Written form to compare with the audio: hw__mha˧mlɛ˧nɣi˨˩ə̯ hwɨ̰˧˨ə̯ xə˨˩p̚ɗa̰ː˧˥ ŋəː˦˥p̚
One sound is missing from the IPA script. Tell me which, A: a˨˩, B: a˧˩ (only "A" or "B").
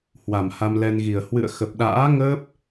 A